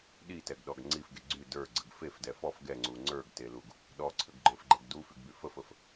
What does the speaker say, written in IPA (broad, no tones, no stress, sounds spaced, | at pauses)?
ɗ i t ɛ ɡ ɗ ɔ ɡ ŋ͡ǀ i f ɡ e ɡ͡ǀ y d ə˞ ɡ͡ǀ ə ɡ f e f d ɛ f ɔ f ɡ ɛ ŋ͡ǀ u ŋ͡ǀ ə˞ ɡ t e l u ɡ | ɗ ɔ ǀʰ ə ɡ ɡ͡ǃ ə˞ f ɡ͡ǃ ɛ ɡ d u f y ɡ b y f ə f ə f